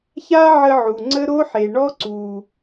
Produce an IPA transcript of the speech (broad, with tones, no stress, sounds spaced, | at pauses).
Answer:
ç a˦ ʕ ə˧ ʕ u˨ ŋ͡ǀ ə˦ ɾ o˦ ħ e˨ ɳ ɔ˦ ǀ u˨